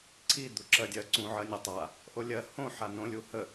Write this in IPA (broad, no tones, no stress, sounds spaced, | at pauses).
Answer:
ǀʰ i d̪ u ǁ ɜ dʲ ɜ ǀ ũ ʕ ɜ nʲ ɛ tˤ a | ʔ o lʲ ɜ h õ ħ a n õ lʲ u h ə